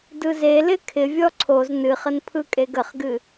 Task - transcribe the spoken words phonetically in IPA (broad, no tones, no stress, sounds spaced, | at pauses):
d ɯ z e l ɪ kʰ ɪ vʲ ɔ ǀʰ o z n ɨ χ ə n pʰ ɯ kʼ e ɡ ə χ ɡ ɨ